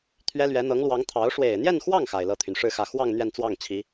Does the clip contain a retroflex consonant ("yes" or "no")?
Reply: yes